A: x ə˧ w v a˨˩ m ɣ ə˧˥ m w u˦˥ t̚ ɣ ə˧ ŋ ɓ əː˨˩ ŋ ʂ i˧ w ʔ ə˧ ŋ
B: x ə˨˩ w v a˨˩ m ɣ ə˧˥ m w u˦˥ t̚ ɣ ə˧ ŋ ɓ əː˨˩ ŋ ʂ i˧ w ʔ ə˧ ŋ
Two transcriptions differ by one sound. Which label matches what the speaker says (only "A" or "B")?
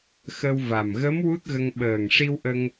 A